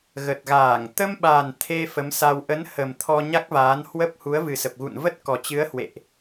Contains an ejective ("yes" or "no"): no